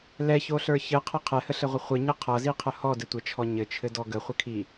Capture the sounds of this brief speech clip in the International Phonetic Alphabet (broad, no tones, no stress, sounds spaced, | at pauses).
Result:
l ɛ ç o ɬ ə˞ ç ɘ qʰ ə qʰ ɛ h ə ɬ ɘ ʁʷ ə χʷ i ɲ ə qʰ ʌ z i qʰ ə h ɔ d ɘ tʷ ɛ t͡ʃʰ ɔ ɲ ɘ t͡ʃʰ ɘ d ɔ ɡ ə χʷ ə kʰ i